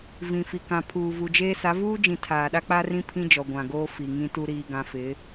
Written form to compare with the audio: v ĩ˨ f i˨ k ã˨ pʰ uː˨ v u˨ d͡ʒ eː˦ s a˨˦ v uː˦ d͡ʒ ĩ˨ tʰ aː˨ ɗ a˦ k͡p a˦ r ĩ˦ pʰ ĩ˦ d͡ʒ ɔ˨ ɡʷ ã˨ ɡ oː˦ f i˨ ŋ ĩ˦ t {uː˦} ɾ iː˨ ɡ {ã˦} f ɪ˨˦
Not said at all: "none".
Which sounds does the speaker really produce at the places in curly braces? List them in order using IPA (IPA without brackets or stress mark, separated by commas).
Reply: u˦, ã˨